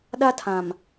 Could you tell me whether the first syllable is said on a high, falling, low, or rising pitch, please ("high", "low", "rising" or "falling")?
high